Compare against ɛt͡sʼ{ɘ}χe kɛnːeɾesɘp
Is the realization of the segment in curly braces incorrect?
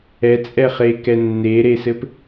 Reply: yes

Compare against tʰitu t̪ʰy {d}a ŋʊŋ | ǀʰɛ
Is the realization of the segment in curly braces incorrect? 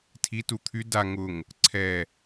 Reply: no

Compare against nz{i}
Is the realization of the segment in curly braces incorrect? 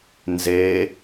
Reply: yes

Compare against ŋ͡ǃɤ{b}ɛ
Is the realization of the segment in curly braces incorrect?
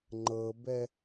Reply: no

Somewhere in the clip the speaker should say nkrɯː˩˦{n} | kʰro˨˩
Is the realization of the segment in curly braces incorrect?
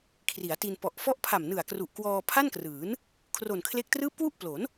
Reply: no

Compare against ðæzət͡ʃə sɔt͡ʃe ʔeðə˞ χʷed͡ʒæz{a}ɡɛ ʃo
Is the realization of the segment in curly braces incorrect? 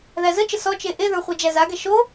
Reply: no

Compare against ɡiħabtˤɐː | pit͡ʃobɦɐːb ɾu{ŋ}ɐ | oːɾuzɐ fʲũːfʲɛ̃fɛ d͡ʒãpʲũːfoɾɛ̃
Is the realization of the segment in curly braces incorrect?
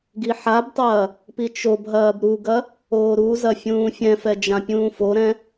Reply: yes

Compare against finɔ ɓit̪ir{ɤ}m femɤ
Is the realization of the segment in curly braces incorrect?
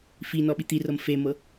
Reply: no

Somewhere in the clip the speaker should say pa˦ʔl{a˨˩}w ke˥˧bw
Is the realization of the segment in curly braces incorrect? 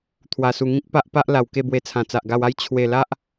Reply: no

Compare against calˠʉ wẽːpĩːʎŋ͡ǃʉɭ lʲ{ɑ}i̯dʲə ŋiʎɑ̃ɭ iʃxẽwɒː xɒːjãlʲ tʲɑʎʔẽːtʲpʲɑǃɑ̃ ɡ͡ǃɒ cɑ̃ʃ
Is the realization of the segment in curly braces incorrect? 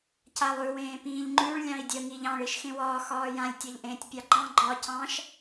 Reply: yes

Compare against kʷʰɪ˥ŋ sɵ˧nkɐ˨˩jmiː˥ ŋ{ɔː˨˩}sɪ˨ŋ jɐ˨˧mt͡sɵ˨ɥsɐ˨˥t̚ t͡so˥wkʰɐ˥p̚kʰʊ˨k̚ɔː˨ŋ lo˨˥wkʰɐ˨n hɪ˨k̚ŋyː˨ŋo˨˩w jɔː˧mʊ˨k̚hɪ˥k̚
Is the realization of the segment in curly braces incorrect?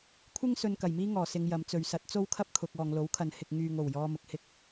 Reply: no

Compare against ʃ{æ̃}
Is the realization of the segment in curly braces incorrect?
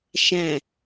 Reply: no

